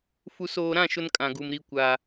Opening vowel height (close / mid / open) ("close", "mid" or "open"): close